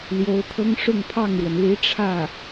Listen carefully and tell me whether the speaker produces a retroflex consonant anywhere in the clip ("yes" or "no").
yes